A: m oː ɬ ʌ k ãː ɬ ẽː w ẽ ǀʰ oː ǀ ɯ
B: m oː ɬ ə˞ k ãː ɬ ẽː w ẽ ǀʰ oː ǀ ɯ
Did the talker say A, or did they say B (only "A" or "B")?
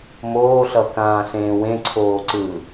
A